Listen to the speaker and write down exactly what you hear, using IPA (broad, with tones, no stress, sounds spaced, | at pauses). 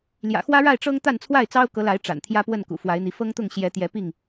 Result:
l j ä̰˨˩ x w ä˦ ɻ a˥˨ ɪ̯ ʈ͡ʂ ɤ˦ ŋ t̪ a˥˨ n t͡sʰ w a˥˨ ɪ̯ t͡s ɑ˦ ʊ̯ k ɤ˨˦ l a˨˦ ɪ̯ ʈ͡ʂ a̰˨˩ n t̪ʰ j ä˦ p w ə˥˨ n k ṵ˨˩ f w a˨˦ ɪ̯ n̪ i˨˦ f ɤ˦ ŋ t̪ ʊ˥˨ ŋ ɕ j ɛ˨˦ t̪ j ɛ˨˦ p i˥˨ ŋ